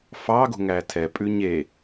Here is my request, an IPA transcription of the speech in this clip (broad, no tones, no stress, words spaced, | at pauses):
fɑ ɡo̤ŋætʰɛpʼʉ ɲe